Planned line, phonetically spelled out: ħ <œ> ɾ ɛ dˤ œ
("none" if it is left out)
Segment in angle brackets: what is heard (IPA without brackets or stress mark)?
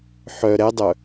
œ